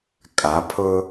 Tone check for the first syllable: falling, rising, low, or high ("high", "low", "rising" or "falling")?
rising